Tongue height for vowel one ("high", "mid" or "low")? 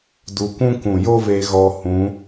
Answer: high